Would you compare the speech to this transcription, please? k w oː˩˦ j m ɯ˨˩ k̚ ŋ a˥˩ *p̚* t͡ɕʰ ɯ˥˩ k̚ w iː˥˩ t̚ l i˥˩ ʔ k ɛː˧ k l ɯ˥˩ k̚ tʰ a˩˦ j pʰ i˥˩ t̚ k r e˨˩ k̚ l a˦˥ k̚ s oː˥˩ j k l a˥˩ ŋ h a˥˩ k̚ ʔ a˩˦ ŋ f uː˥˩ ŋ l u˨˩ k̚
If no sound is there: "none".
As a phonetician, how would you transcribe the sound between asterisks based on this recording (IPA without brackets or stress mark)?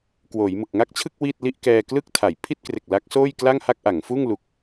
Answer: k̚